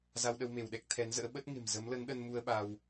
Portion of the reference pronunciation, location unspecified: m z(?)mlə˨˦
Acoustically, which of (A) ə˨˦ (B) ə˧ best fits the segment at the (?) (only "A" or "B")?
A